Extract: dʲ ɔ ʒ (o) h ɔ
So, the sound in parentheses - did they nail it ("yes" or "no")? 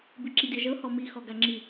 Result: no